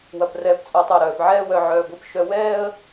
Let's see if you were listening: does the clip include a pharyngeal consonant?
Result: yes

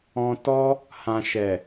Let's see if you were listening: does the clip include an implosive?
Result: no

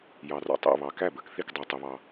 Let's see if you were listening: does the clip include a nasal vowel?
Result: no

